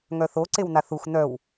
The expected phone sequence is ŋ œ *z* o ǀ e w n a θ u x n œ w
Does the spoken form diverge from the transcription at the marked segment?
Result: yes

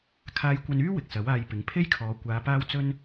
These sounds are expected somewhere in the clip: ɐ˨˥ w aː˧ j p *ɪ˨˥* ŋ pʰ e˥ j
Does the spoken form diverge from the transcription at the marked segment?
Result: no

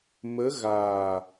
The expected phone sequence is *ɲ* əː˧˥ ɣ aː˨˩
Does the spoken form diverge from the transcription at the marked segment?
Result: yes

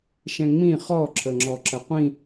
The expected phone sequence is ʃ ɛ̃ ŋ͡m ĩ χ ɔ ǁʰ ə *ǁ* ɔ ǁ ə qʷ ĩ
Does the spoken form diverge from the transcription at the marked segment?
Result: yes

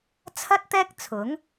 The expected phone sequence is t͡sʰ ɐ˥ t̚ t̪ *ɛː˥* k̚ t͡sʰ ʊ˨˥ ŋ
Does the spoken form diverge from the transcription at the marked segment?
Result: no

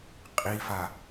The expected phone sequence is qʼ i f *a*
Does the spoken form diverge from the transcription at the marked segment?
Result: no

